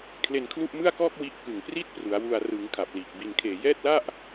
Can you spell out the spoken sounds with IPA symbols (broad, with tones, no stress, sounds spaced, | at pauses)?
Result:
kʰ l e˧ n kʰ l u˥˩ ʔ m ɯ˥˩ a̯ k ɔː˥˩ k̚ w i˦˥ ʔ k ɯ˨˩ ŋ p r iː˥˩ t̚ p r u˩˦ a̯ w u˧ a̯ r ɯ˩˦ ŋ kʰ a˨˩ p̚ l iː˨˩ k̚ b i˨˩ n kʰ eː˨˩ j ɛː˥˩ t̚ l a˥˩ ʔ